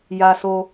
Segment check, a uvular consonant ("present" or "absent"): absent